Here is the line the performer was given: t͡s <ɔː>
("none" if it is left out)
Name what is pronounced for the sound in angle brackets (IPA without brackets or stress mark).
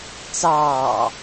ɑː